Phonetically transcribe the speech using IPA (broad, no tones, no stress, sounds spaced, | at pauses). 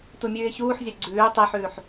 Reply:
t u mʲ ʉː ɪ̯ ç uː ħ zʲ a ɡ͡ǀ ʉː tˤ e ħ ʉː ħ